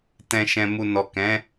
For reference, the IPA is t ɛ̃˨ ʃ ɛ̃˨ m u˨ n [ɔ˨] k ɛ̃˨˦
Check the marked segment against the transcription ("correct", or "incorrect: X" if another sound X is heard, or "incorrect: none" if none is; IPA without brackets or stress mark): correct